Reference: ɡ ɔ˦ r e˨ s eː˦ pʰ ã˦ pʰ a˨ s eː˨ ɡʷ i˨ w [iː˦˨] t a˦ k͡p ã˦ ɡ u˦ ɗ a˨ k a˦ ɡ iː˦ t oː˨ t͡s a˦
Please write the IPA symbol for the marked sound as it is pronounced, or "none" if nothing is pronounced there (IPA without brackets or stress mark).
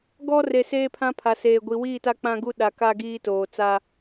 iː˦˨